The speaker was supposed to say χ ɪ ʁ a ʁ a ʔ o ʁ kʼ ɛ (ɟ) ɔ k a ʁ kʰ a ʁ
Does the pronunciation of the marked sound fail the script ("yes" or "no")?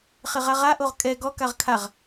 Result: yes